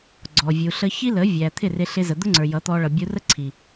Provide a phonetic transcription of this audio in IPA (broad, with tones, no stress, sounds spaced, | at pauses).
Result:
ɡ͡ǀ ɔ˨ vʲ u˨ ɬ ə˧ ç i˦ l ə˨˦ vʲ æ˨ t̪ʰ ɪ˦˨ r ɪ˧ ɬ ɪ˧ z ə˨ d̪ ʊ˦ ŋ͡ǀ ə˞˨ j ʌ˨˦ t̪ ɔ˧ ɭ ʌ˨ bʲ u˧ r ə˦ ǀʰ i˨